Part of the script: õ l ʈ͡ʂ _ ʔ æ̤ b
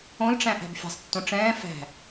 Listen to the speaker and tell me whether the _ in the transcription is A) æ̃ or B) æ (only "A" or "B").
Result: A